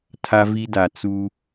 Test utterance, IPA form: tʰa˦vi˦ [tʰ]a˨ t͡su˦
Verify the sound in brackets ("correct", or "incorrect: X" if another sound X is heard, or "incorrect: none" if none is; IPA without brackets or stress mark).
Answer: incorrect: d